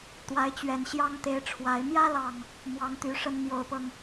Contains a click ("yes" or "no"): no